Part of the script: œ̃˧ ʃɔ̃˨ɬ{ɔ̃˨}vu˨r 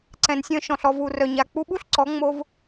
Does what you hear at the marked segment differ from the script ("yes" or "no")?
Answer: yes